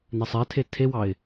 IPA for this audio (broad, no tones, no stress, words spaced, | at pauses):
nɛsˤɛtʰe tʰewɑɪ̯